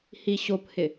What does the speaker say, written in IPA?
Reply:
h i ɕ o p h ɪ

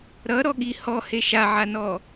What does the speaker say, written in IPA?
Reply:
ɾ ʌ ɾ ɔ ɠ i h ɔ h e ʃ a ʕ a n ɔ

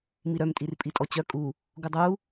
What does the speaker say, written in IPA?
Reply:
m i ɾ œ m tʼ i r pʼ i tʼ ɔ t͡ɕ œ kʼ u | ɡ u dˤ u

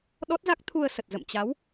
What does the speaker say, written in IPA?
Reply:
ɗ ɔ˦˥ t̚ z a˦˥ k̚ t̪ʰ u˧ ə̯ s ə˨˩ t̚ z ə̰˧˨ m t͡ɕ a˨˦ w

